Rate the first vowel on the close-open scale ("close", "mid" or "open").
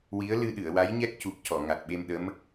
close